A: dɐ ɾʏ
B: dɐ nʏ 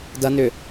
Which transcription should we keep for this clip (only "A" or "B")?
B